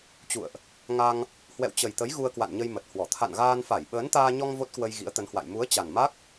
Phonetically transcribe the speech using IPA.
t͡ɕ ṵ˧˨ ə̯ ʔ | ŋ a˧ ŋ | h w ɛ̰˧˨ w t͡ɕ ə˨˩ j t̪ ə˨˦ j ɣ u˧ ə̯ k w a̰˧˨ n ɲ ə˧ j m ə˨˩ t̚ h w ɔ˧˩ t̪ʰ a̰˧˨ n ɣ aː˧ n f a˧˩ j ɓ əː˨˦ n t̪ aː˧ ɲ ɔ˧ ŋ v o˦˥ t̚ k w ə˧ j ɣ ḭ˧˥ ə̯ t̪ ə˨˦ n h w a̰˧˨ j m u˨˦ ə̯ t͡ɕ a˨˩ n m a˦˥ k̚

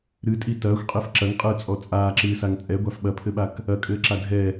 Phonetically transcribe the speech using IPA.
ɾ ɨ tʼ i t ɐː xʷ qʼ i f ǁ ɐ ŋ qʼ ɨː t͡sʼ ɔ t͡sʼ aː ǁ ɨː s a ŋ t͡sʼ ɛ ɡʷ a f ɓ ɐ pʰ ɘ ɓ a k | ɐ kʼ ɘː ǁ a dʱ ɛ

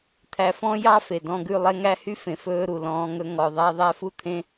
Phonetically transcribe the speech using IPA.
t̪ʰ æ˧ f ɔ̃˦ j ɑ˦ f e˨ d ɔ̃˧ ɡ ʉ˦˨ lˠ ɛ˦ ŋ æ˦ h y˦ f ẽ˨ f ɵː˧ ɾ u˨ l ɔ̃ː˧ ŋ ɵ˧ ŋ ɔ˨ ðˤ æ˧ ðˤ æ˦ f u˦ t̪ʰ ẽ˦

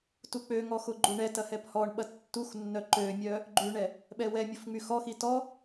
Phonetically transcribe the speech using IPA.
t u k͡p ø ŋ ɔ x ʊ ɡ͡ǃ u ɳ ɛ t ɐ h ɛ p h ɔ ɳ ɓ ɐ tː u x nː œ ǃ ø mʲ œ | ɡ͡ǃ y ɳ ɛ | ɓ ɛ w ɛ mʲ ʊ f ŋ͡m y x ɔ x i t ɔ

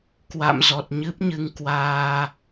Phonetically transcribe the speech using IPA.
k w a̰˧˨ m z ɔ˨˩ t̚ ɲ ɨ˦˥ p̚ ɲ ɨ˧ ŋ k w aː˧

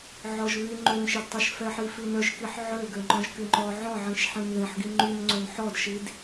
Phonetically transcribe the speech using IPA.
ʕ ɔ ʒ β y ŋ͡ǃ ø n ʃ ɛ d tˤ y ʃ f ɛ ħ i f i n œ ʒ k i ħ ʕ ø ɡ ø ŋ͡ǃ ɔ̃ ʒ k y ŋ͡ǃ ɔ ʕ ɔ̃ ʕ ĩ ʃ ħ ĩ n ð ĩ ħ ɡ i ŋ͡ǃ y n ŋ͡ǀ ø n ħ ɔ d ʃ i d

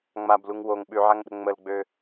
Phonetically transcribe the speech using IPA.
ŋ͡m a b l u ŋ w o ŋ ɓ ʉ ʕ a ŋ ɗ ə̤ ŋ͡m ə l ɡ͡b ø

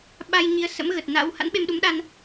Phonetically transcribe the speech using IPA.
ɓ a˧ j ɲ i˨˦ ə̯ s ə̰˧˥ m ɣ ə˨˩ t̚ n a̰˧˥ w h a̰˧˥ n ɓ e˧ m ɗ u˨˦ m ɗ a˧ n

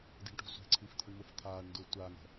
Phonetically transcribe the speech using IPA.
d i̤ ɳ ʈ ṳ sʷ e̤ ǀʰ i f t̪ʰ ʊ ɳ m ʊ f t̪ʰ aː ɳ n d ʊː tʷ a ŋ ɛ̤

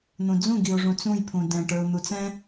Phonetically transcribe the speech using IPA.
n̪ ũ d͡z ũ ɡ i ʊ̯ ʐ ũ t͡s ũ j pʰ ũ d ɛ̃ ʈ ə˞ ʊ̯ n̪ u t͡s ɛ̃

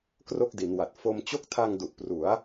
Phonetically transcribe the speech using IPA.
k r o˥˩ k̚ d i˩˦ n w a˨˩ t̚ f o˧ m t͡ɕ o˦˥ k̚ tʰ a˧ ŋ d u˨˩ ʔ p r u˩˦ a̯

